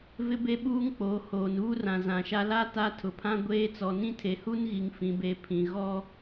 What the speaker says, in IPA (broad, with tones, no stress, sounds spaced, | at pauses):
v ɪ˦ b e˦ ɓ uː˦ ŋ k͡p oː˨ h oː˨ n uː˦ r ã˨ z ã˨ ʃ a˦ l a˦ t a˦ tʰ ʊ˨ pʰ ã˦ ɡʷ eː˦ t͡s ɔ˨ n ĩ˦ tʰ e˨ h u˦ n ɣ i˨ ŋ f ĩ˨ b e˨ pʰ ĩ˨ ɣ ɔ˦